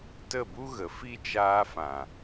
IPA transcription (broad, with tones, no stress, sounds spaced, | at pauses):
t ə˦˨ b u˦ ɣ ə˨ f i˦ t͡ʃ aː˧ f ã˨